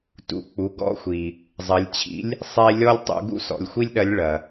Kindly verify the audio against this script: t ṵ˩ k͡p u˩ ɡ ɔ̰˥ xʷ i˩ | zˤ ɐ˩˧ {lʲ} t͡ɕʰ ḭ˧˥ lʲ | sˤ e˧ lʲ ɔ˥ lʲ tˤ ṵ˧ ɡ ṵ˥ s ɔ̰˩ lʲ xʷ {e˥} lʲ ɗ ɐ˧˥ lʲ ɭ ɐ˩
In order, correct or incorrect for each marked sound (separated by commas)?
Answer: correct, incorrect